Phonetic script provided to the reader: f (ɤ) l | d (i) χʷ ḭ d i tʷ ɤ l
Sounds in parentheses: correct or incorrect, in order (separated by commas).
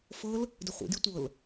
correct, incorrect